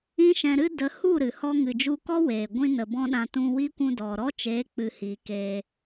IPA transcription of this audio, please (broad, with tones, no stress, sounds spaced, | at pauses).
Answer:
ĩ˦ ʃ ɛ̃˧ ɾ ɨ˦ d ə˨˦ h u˦˨ ɾ ɨ˨ h ɔ˦ ŋ ɨ˨ d͡ʒ u˧ k ɔ˦ w eː˨ ɡʷ ĩ˦ n ə˨ b ɔ̃˦ ɗ ã˧ t ũ˧ w i˦ kʷ ũ˧ d ɔ˨ ɾ ɔ˦ t͡ʃ eː˨˦ k͡p ɨ˨ h iː˨ k eː˧